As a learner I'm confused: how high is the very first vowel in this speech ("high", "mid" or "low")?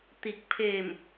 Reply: high